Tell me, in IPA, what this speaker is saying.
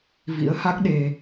v ḭ˧˥ ə̯ h a˦˥ k̚ ɗ e˧

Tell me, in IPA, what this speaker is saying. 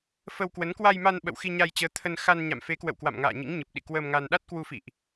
f ə˧ w k w ə˨˦ n k w a˧ j m a˧ n ɓ ə̰˧˨ w x i˧ ɲ a˧ j t͡ɕ əː˨˦ t̪ʰ ə˧ n x a˧ n ɲ a̰˧˨ m f e˨˦ k w ə̰˧˨ w k w a̰˧˨ m ŋ a̰ː˧˨ ɲ ḭ˧˥ ŋ ɲ ɨ˨˩ p̚ ɗ ḭ˧˨ k w əː˧ m ŋ a˧ n ɗ a˦˥ t̚ k w u˧ f ḭ˧˨ ʔ

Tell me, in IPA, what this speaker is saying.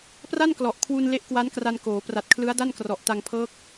p r a˥˩ n k l ɔ˨˩ ʔ kʰ w u˧ n l e˦˥ ʔ k w a˦˥ n k r a˧ n k oː˩˦ p r a˨˩ t̚ kʰ l ɯ˦˥ a̯ d a˥˩ n k r ɔ˨˩ ʔ t a˧ ŋ pʰ ɤː˦˥ k̚

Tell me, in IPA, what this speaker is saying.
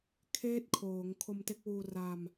kʰ eː˥˩ t̚ kʰ oː˩˦ ŋ kʰ o˧ m t e˦˥ k̚ w uː˧ r a˧ m

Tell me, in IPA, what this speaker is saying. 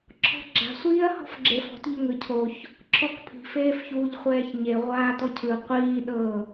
ǁʰ ɔ̤ ɡ͡ǁ a̤ sʷ iː ɐ̯ h ɔ̤ f ɡ͡ǁ e f ɔ̤ t ʎ o ŋ ɯ cʰ o ç | ǁʰ ɔ k pʰ i̤ f eː f ç uː ʎ χʷ ɛː ç ɲ e ʁʷ aː t ɔ cʰ ɯ qʷ iː ɗ ɤ

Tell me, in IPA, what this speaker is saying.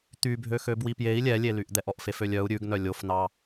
t̪ y bʱ ø x ø b w i p j e i̯ lʲ ɛ lʲ e l y ʔ d̪ ɛ ʔ ɔ ʔ f e f ø lʲ œ u̯ ɾʲ ʉ ɡ n œ lʲ o f n ɑ

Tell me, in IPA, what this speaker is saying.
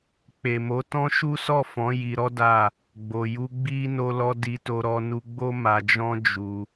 k͡p e˨ m o˨˦ t ɔ̃˦ ʃ u˦ s ɔ˦˨ f ɔ̃˨˦ j i˧ ɾ ɔ˦ d a˦˨ | ɡ͡b o˨ j u˧ ɡ͡b i˧ n o˧ l ɔ˧ d i˧ t o˧ ɾ ɔ˧ n u˧ ɡ͡b o˦ m a˧ d͡ʒ ɔ̃˦ d͡ʒ u˧

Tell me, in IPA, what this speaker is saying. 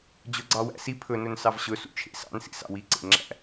d͡ʑ ɵ ɡ͡ǀ ɑ w æ̰ s i pʰ ɵ n ɵ n s ɑ v ɕ ɵ s ṵ t͡ʃʰ ḛ s ɑ̰ n s ḭ s ɑ̰ w i ǀ ḛ ŋ͡ǁ æ̰

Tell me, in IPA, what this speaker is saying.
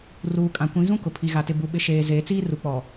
r uː˨ kʼ ã˨ kʷ ĩ˨˦ z ũ˦ k ʊ˨ pʰ i˨ ɣ a˨ t ɪ˨ b u˨ ɓ ɪ˨ ʃ eː˨ z eː˨ t͡s iː˦ r u˨ k͡p ɔ˨

